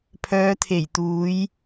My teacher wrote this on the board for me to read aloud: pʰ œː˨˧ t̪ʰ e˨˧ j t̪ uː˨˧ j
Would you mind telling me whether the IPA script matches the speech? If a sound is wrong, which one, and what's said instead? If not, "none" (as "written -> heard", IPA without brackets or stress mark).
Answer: e˨˧ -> e˨˩